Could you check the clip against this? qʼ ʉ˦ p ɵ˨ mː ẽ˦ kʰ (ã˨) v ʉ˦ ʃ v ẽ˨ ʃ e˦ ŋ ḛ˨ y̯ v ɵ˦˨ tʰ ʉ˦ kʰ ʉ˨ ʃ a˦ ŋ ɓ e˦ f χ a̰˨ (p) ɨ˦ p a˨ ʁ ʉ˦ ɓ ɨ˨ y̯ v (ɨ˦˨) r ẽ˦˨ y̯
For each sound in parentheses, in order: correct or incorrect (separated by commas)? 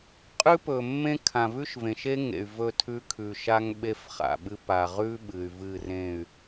correct, incorrect, correct